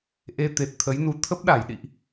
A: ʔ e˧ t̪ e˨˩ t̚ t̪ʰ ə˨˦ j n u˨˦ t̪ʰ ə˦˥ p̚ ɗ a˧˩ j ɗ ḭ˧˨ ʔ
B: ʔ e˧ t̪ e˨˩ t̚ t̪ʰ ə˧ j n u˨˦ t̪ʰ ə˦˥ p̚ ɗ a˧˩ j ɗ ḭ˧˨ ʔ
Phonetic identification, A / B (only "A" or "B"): A